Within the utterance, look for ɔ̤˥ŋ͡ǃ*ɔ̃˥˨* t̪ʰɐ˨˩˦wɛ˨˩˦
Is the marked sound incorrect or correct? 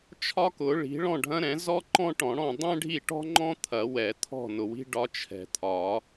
incorrect